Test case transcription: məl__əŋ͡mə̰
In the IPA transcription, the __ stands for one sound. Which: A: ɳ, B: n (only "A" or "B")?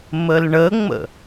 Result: A